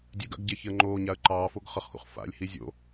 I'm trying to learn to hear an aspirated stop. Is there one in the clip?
no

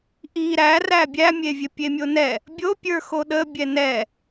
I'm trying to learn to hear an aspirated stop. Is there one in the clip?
no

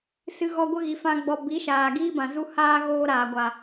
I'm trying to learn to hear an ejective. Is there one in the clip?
no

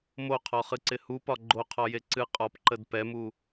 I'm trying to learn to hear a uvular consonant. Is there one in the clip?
yes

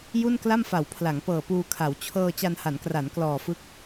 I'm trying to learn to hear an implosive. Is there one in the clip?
no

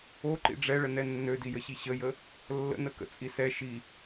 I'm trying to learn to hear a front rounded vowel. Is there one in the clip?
yes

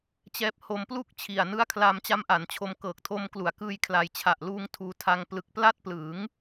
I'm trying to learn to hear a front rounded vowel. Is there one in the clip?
no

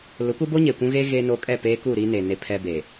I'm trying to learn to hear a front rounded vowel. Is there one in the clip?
no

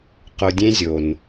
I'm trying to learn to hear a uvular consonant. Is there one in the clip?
yes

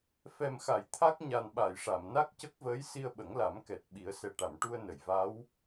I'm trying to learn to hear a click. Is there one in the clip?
no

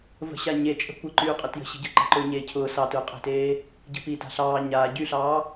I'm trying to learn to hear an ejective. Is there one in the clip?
yes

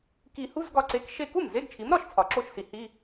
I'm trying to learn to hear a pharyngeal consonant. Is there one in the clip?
no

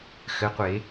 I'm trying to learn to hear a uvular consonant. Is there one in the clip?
yes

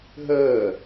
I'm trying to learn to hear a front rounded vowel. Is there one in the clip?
no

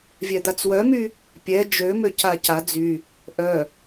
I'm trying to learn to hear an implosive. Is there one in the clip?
no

